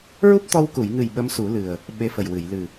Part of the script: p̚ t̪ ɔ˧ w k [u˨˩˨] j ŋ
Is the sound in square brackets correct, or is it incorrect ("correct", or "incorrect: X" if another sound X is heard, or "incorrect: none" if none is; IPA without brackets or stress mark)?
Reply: correct